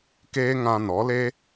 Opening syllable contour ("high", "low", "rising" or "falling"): high